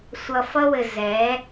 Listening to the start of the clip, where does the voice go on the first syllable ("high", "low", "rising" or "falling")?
low